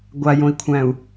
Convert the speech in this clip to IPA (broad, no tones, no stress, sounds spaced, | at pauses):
ɡʷ a j õ i̯ kʷʰ æ̃ u̯